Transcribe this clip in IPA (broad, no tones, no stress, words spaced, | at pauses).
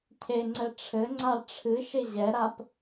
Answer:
cʰeŋ͡ǀɛ ʈ͡ʂʰɘŋ͡ǀa ʈ͡ʂʰɨʃe ʑɛɾap